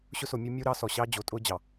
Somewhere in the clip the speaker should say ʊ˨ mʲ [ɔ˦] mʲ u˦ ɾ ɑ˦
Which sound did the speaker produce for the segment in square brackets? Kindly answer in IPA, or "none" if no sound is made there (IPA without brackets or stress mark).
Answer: o˦